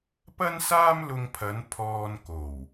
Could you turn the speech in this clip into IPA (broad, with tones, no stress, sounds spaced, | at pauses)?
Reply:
p ɐ˥ n s aː˥ m l ʊ˧ ŋ pʰ ɐ˨˧ n pʰ ɔː˧ n k o˨˩ w